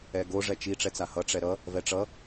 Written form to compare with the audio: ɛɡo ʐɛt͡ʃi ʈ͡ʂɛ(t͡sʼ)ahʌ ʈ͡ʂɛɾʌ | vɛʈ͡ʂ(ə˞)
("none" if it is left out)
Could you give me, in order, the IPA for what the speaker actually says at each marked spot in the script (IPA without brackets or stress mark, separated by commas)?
t͡s, ʌ